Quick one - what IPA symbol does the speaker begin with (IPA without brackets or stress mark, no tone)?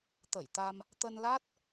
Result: t̪